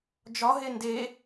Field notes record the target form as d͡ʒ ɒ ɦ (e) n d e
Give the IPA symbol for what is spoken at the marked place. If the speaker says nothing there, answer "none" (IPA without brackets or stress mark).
e